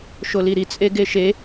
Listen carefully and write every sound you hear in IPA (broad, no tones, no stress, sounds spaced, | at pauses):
ʃ o l i ɾ i t͡sʼ e ɡ e ʃ e